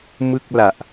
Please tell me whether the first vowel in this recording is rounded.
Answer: no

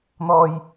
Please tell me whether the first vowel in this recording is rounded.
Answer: yes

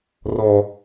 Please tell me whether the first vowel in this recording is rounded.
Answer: yes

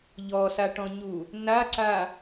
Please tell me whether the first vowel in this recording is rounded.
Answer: yes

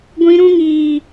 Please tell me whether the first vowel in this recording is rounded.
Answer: no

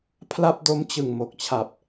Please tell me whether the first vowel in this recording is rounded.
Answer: no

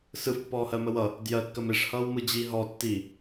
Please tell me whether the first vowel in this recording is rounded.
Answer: no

